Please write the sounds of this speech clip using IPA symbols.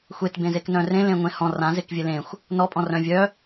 xʷetbẽzek nœ̃rẽ lẽŋʷẽhɔ̃ rã zekvʲelẽxʷ | nɔpʼɔ̃rœ̃ vʲœ

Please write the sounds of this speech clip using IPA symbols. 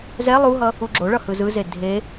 zɛ lˠuɦʌ | uɡ͡ǁoɭʌ hɯzɯze dʱe

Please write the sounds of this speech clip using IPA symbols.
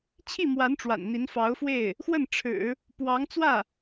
t͡ɕʰi˥˩mwa˧˥n ʈ͡ʂwa̰˨˩nn̪i˧˥nfɑ˧˥ʊ̯fwe˥˩ɪ̯ | xwə˥˩n ʈ͡ʂʰɻ̩˨˩˦ | pwɑ˧˥ŋt͡swä˥˩

